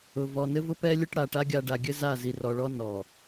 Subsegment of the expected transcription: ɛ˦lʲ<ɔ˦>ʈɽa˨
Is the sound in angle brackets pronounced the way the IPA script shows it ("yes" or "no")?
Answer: no